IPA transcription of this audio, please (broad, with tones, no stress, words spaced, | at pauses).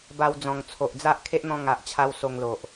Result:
ba˧wd͡zɔ̃˨˩ŋt͡sʰo˨ʔd͡za˦ʔ kʰe˦ʔn̪ɔ̃˧ ŋa˨ʔt͡ɕʰa˧w so˧ŋlo˨ʔ